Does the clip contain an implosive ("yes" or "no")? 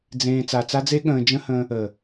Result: yes